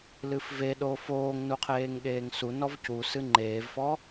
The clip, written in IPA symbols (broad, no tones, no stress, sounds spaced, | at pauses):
l ɨ f v e ɗ oː f oː ŋ n u qʰ eː ŋ ɠ eː ŋ s u n ɔ v c u s ɨ ŋ͡ǃ eː v f ɔ